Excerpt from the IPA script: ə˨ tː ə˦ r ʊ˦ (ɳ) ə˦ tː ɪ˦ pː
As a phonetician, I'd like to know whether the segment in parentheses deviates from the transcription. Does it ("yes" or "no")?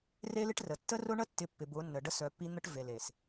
no